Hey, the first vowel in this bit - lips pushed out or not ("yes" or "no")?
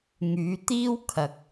yes